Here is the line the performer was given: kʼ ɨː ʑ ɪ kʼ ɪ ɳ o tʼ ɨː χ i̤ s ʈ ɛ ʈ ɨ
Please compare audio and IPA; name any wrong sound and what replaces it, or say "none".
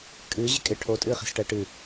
ɳ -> ʈʰ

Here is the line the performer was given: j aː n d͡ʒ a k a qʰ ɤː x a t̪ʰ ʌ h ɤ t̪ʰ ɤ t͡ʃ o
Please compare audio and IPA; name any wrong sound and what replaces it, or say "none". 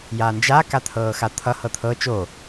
qʰ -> t̪ʰ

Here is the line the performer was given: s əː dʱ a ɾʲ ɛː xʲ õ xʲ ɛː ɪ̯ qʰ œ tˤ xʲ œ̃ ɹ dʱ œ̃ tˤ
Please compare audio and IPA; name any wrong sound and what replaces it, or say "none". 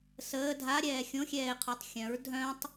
none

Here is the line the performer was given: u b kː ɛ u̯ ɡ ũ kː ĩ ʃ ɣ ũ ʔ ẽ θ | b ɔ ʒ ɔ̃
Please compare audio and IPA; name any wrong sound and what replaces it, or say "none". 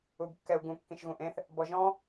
none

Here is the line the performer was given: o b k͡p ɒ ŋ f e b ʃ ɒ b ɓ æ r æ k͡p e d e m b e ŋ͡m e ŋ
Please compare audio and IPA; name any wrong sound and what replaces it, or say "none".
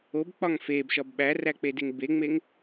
m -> ŋ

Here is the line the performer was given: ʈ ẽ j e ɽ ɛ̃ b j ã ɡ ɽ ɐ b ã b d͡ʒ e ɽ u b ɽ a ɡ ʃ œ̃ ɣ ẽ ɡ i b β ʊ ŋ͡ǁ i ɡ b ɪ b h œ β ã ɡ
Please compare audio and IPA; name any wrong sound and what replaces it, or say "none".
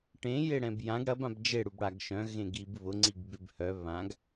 ŋ͡ǁ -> ŋ͡ǀ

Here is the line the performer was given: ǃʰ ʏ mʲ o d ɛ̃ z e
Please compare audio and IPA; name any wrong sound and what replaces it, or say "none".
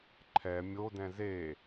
ʏ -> ɛ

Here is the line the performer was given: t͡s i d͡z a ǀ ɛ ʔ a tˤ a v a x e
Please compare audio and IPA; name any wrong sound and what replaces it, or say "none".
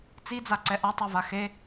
none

